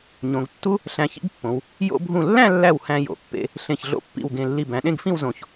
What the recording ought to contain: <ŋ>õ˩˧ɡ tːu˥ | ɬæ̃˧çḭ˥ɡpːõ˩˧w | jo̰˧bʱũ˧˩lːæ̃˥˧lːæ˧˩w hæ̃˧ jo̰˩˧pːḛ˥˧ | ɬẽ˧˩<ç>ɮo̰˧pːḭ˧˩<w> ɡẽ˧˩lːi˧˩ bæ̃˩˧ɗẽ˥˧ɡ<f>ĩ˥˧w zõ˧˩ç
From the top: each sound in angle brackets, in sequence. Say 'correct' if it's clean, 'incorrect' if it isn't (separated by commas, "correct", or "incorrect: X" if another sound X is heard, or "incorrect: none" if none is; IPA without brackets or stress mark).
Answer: incorrect: ɲ, correct, correct, correct